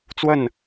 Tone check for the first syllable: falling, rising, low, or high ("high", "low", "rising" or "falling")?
falling